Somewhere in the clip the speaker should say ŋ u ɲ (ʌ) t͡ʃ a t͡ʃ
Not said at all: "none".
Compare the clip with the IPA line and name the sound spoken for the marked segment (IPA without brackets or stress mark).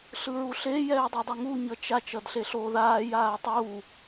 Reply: ʌ